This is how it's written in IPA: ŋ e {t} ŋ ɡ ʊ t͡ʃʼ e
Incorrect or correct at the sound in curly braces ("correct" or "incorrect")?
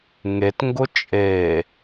correct